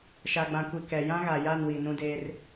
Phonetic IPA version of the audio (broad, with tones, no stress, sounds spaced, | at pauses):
ʃ a˨ ɡ͡b ã˨ kʷ i˨ k ɛ˨ j ã˦ ɣ a˨ j a˦˨ n w i˨ n ũ˦ d eː˦ r